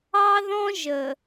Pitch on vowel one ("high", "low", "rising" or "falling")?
high